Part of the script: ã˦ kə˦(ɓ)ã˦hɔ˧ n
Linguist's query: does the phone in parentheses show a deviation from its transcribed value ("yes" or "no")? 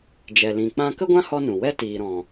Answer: yes